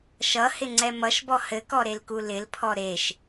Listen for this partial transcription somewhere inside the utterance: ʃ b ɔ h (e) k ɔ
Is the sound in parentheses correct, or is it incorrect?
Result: incorrect